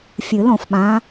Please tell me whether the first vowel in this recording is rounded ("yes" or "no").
no